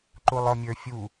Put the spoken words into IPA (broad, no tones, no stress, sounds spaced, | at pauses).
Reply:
ǃ u lˠ ɔ mʲ ə˞ fʲ u